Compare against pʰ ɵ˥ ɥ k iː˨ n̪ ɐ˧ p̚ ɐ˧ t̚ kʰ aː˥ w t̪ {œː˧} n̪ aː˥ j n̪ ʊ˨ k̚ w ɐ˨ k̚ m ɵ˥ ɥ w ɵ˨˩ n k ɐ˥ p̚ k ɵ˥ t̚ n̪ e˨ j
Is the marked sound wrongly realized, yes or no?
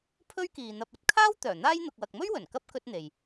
yes